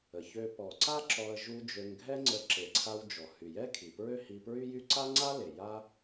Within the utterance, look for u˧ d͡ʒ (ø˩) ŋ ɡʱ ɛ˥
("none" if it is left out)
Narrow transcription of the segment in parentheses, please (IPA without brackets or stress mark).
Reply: ø˧